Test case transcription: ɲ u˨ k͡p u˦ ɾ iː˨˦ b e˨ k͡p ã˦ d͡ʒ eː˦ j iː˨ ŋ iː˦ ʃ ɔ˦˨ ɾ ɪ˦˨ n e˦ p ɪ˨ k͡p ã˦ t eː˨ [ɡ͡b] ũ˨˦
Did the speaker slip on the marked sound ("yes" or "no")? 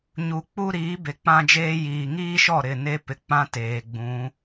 no